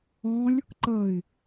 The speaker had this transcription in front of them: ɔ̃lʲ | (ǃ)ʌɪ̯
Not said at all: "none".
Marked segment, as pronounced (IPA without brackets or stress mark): ǃ